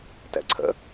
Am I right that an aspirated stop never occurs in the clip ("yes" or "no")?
no